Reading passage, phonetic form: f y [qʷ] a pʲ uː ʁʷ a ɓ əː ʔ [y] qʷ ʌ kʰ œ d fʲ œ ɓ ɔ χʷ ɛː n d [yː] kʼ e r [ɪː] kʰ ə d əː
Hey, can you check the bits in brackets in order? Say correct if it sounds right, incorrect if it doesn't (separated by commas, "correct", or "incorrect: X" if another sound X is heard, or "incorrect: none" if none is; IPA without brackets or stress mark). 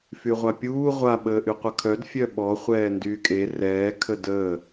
incorrect: ʁʷ, correct, correct, incorrect: ɛː